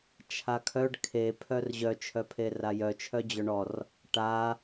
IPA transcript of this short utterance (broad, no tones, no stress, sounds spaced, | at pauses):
t͡ʃʰ a kʰ œ ɖ kʰ e pʰ œ r ʑ œ t͡ʃʰ œ pʰ e r a j œ t͡ʃʰ œ d͡ʑ œ ɳ ɔ r | ʈ a